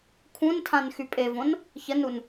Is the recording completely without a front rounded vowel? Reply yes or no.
no